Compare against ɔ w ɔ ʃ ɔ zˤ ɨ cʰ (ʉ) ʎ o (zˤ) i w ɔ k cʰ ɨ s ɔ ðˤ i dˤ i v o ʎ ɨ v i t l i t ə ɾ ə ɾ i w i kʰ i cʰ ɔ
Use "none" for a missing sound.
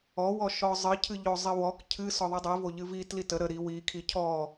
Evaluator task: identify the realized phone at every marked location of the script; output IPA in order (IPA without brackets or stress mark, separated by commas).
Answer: ɨ, zˤ